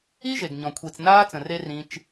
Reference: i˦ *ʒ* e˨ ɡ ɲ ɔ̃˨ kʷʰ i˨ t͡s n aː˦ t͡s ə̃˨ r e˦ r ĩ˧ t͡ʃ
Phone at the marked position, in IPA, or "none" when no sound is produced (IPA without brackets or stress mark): ʒ